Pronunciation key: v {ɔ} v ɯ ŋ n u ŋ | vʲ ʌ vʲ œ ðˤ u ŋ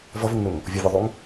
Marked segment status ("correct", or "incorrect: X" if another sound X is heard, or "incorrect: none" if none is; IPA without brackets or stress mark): incorrect: ʌ